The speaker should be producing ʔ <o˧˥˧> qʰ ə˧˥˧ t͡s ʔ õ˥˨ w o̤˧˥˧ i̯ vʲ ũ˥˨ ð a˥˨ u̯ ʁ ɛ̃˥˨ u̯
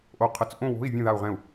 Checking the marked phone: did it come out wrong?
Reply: no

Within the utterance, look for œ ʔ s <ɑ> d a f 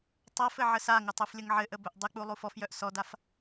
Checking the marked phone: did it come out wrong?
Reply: yes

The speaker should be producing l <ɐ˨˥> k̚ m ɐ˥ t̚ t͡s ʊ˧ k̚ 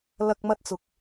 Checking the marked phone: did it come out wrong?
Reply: yes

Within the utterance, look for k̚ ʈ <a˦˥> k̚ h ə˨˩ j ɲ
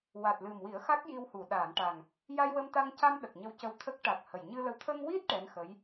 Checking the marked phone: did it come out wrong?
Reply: yes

